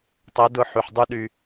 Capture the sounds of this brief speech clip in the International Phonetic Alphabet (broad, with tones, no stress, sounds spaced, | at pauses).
tˤ ə˨˦ d ʊ˧ ħ y˨ ħ dˤ y˦ ɗ y˧